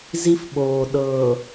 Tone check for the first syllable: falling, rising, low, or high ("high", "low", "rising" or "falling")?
high